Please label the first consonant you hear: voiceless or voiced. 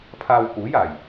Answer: voiceless